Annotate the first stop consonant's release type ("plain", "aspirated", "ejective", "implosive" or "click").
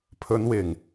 aspirated